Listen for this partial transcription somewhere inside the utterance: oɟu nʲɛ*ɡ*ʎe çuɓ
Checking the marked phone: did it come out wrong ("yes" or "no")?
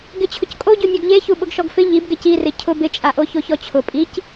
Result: no